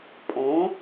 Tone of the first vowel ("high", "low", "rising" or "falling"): rising